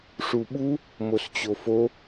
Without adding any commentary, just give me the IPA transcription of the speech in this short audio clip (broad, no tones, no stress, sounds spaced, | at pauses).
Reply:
ʂ u ɓ u | m o s t͡ɕ o f o